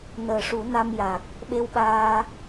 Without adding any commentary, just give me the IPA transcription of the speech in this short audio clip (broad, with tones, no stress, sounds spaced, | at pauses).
n əː˨˩ ʂ u˨˩˦ n a˧ m j a˨˩ k̚ | ɓ e˧ w ɓ aː˧